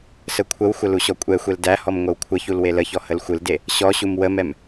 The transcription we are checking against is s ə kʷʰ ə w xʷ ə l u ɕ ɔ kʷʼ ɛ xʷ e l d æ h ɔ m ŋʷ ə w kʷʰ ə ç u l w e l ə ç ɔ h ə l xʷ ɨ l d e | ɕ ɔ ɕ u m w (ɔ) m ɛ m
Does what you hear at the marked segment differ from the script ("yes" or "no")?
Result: yes